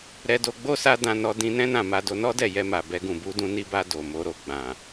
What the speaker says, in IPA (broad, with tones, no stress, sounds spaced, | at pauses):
ɾ ɛ˧ d o˧ ɡ͡b o˦ s a˦ d ã˧ n ɔ˧ d ĩ˧ n ɛ̃˦ n ã˦˨ m a˧ d o˧ n ɔ˦ d ɛ˦˨ j ɛ˧ m a˨ b ɛ˧ ɡ ũ˨ b u˧ d ũ˧ n i˧ b a˧ d o˨ m o˨˦ ɾ o˧ ɡ͡b ã˨